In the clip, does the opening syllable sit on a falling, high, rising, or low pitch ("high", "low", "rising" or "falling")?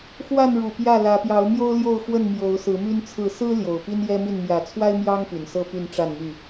falling